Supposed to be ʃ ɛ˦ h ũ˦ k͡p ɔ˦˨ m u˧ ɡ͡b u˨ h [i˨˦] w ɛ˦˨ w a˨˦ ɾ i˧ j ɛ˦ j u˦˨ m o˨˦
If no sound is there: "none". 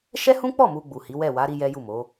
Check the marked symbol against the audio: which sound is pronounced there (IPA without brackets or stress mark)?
i˨˦